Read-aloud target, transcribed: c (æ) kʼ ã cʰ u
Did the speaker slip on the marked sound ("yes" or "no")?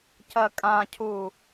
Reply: yes